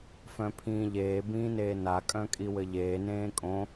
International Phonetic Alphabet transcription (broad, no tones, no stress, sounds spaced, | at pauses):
f œ̃ pʰ ĩː ʎ eː b ĩː n eː n a kʼ œ̃ kʼ i w ɘ ʎ eː n ẽː kʼ õ